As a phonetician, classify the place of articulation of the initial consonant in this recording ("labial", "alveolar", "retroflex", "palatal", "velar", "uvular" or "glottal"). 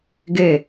velar